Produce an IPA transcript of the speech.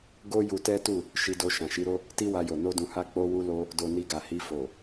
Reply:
ɡo˦ ju˧tɛ˦tu˦˨ | ʃi˧do˧ ʃã˨ʃi˨˦ɾo˦ | ti˦wa˧jo˨ no˧dũ˨ha˧ k͡po˧wu˧lo˧ | do˨ ni˧ɡa˨hi˧ fo˨

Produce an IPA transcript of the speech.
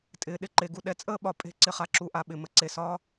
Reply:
tʼɪː˩˧ɗɪ˩˧ǃe˩˧ɡu˧ ɗɛ˧t͡sʼəː˥˧ɓɒ˧˩ pʼe̤˥˧ǀɪ˧χa˧ ǁu˧˩ʔa˧ɓɪ˧˩ mə˥ǀe˧˩sɒː˥

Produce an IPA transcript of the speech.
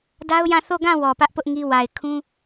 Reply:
da˦ʊ̯jã˦˨ θo˦˨ɡã˦˨ wɔ˨pä˦ʔpʊ˦ʔ ŋi˦wa˨ɪ̯ kʰũ˦

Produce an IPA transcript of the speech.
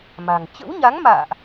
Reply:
ma̤˨˩ŋ t͡ɕə̰˧˥wɲa˨˦ŋma̰ː˧˨ʔ

